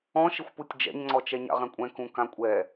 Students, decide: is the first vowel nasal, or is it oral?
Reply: nasal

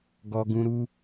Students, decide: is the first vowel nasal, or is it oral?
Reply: oral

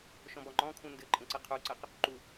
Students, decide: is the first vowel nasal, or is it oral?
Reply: nasal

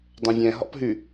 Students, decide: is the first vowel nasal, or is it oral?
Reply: nasal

